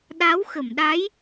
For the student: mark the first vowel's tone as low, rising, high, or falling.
rising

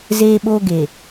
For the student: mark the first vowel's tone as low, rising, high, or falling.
high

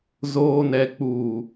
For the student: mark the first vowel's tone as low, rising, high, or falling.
low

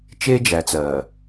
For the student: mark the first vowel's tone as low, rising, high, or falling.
high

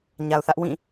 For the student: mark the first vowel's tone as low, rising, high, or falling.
low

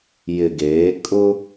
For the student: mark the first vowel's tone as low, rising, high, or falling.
low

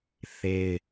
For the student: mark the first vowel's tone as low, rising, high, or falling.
high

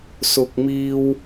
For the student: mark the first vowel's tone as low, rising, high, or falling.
low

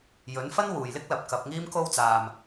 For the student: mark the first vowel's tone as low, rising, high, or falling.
rising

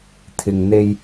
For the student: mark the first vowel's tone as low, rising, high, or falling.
low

